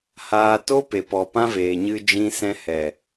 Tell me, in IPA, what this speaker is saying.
h aː˧ t o˦ p e˨ p ɔ˨ p ã˦ v eː˨ ɲ ɨ˧ d͡ʒ ĩ˧ s ɛ̃˧ h ɛ˨

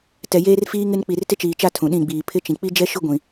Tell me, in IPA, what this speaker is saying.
t ɛ˨ j eː˦ r f iː˦ ŋ ɪ˦ n k͡p i˨ r t ɪ˦ t͡ʃ iː˨ t͡ʃ a˦˨ tʰ ũ˨ ɗ ĩ˦˨ ɡ͡b iː˨ pʰ ɪ˦ t͡ʃ ĩ˨ k͡p i˦ d͡ʒ ɛ˦ ʃ ʊ˦ ɡʷ ĩ˨

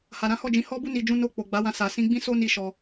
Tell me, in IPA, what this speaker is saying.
h a˨ ɾ ã˨˦ h ɔ˦˨ d͡ʒ ĩ˨˦ h ɔ˦ b u˦ n i˧ d͡ʒ ũ˦ n o˧ k͡p o˨ ɡ͡b a˨˦ w ã˧ s a˨ s ĩ˧ ɡ͡b ĩ˦ s o˦ n i˧ ʃ ɔ˧

